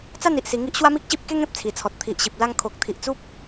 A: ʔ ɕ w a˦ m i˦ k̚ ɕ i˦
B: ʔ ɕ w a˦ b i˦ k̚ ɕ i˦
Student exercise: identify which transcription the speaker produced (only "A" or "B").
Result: A